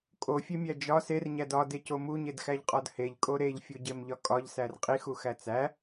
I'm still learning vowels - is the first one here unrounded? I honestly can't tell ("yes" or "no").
no